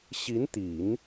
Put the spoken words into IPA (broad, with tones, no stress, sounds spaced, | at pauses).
ɕ i˧˥ n t̪ i˨˩˦ n